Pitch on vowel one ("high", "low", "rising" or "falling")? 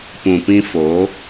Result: low